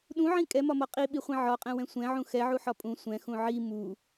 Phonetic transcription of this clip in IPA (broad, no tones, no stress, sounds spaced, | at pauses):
ɗ ũ ʕ ĩ kʼ ɛ m ɒ m ɒ qʼ i ɓ i χʷ ĩ ʕ ɒ qʼ ɛ̃ w ɛ̃ sʷ ɛ̃ ʕ ũ x ɛ ʕ u ħ ɒ pʼ ũ sʷ ɛ̃ x ũ ʕ i m u